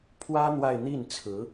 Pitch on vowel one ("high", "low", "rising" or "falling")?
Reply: high